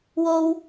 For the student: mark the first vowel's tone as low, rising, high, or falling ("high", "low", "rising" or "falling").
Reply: high